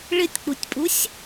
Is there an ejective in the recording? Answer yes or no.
yes